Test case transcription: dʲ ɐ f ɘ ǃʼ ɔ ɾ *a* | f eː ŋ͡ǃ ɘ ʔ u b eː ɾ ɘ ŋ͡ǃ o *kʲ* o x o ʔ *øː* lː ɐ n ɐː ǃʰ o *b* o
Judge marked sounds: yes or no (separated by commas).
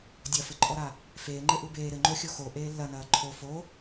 yes, no, no, no